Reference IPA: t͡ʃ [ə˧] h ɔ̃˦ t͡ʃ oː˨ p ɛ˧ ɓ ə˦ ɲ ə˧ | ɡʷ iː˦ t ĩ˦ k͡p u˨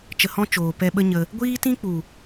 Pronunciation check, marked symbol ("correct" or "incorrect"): correct